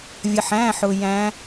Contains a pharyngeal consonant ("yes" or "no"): yes